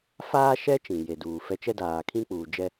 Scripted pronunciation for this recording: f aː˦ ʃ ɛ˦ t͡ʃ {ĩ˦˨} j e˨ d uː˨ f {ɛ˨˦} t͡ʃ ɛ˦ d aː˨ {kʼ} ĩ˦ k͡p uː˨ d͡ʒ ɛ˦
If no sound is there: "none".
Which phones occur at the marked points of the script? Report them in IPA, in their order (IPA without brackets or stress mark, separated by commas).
ĩ˨, ɛ˦, kʰ